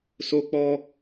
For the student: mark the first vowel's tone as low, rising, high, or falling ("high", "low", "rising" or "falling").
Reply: high